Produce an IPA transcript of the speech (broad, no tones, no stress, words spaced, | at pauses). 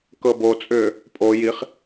kɤbot͡sʼʏː | pʼo jiχ